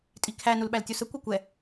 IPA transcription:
tʼ i kʰ æ n u l ɓ æ l tʲ u s ə kʷ ɛ kʷ ɛ

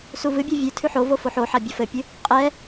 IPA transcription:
s u v ɨ bʲ ɔ vʲ ʉ tʰ ʉ ħ o v o f o ħ o ħ a bʲ ɔ f ɘ pʲ ɨ | qʼ ɛ

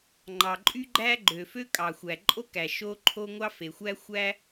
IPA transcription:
ŋ͡ǃ ɑ˩ ǃʼ y˥ ɡ͡ǃ æ˥ ɡ͡ǃ ø˩ f ø˥ kʼ ɑ˩ xʷ æ˩ ǃʼ o˥ k æ˩ ʃ o˥ ǃʰ o˥ ŋʷ ɑ˥ f e˩ xʷ æ˥ xʷ æ˥

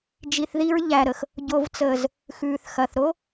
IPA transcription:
d͡ʒ i˨ θ ð i˧ ɹ ʎ æ˨ ɾ ə˨ x | ɟ o˨ v t͡s əː˨ z | x ʉː˨ θ x ɐ˨ θ ɾ o˦

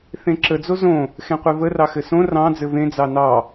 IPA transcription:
θ ẽ ǁ ə d͡z o z õ | x ẽ qʷ e v ə r ɑ x ɘ s õ r ɑ̃ d͡z ɘ v ẽ d͡z ɑ n ɑ

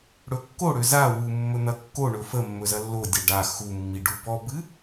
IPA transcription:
ɽ ɵ kː o ɽ ø z a w u mː ɵ n̪ ɐ kː o ɳ ɵ f ə mː ɵ z ɐ lː o dʲ a ɖ a x u mː i ɖ u b ɔ b ɨ

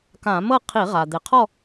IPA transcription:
k ã˧˩˧ m ɤ˥˨ qʰ i˧˩˧ ʁ a˩ d̪ e˩ qʰ ɔ˥˨

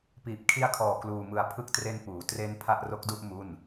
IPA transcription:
p iː˨˩ p̚ kʰ i˦˥ a̯ kʰ ɔː˨˩ k l uː˧ m ɯ˧ a̯ pʰ ɯ˦˥ k̚ t r e˦˥ n p uː˩˦ t r e˦˥ n pʰ a˥˩ ʔ r o˦˥ k̚ d u˥˩ ʔ m u˥˩ n

